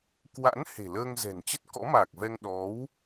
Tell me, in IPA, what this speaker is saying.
k w a̰˧˥ n h e̤˨˩ l əː˧ ŋ z ɛ̤˨˩ n t͡ɕ ə˦˥ t̚ k ɔ̰˧˥ m aː˨˩ k̚ v ɛ˧ ŋ ɗ ɔ˨˦ w

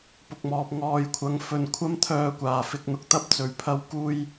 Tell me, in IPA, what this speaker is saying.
p ʊ˨ k̚ m ɔː˨ p̚ ŋ ɔː˨ j kʷʰ ɐ˨˧ ŋ f ɵ˨ n kʷʰ ɐ˥ m t̪ʰ œː˧ kʷ aː˨˩ f ɪ˧ k̚ n̪ ʊ˨˥ k̚ t̪ ɐ˥ p̚ t͡s ɵ˨˧ ɥ pʰ ɐ˥ w k uː˥ j

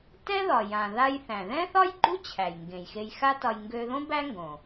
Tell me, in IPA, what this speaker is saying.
t ɛ˥ ð ɒ˩ j ã˩ ð a˧ j θ æ̃˩ ð ɛ̃˥ θ ɒ˥ j ɡ͡ǃ u˥ t͡ɕʰ æ˩ j ŋ ɡ ẽ˩ j x e˧ j x a˥ t ɒ˧ j ŋ ɡ ø˧ ð õ˥ b æ˥ ŋ ɡ õ˩

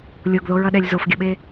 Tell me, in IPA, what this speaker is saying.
lʲ o ɡ ð o ɹ ʌ ɗ ɛ lʲ z o f ɡʲ ʌ ɓ e

